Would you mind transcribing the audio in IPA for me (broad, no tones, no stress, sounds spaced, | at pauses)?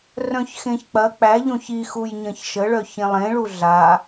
r œ̃ ç x ẽ ç k͡p ɐ k͡p æ ʎ õ ç i x u j ɲ ɐ̃ ç ʃ ə ɭ œ ç ẽ lˠ ẽ ɭ u ɮ a